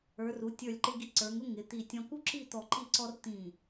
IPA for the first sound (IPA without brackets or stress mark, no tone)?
ə˞